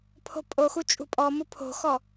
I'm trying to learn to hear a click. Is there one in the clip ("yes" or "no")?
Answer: no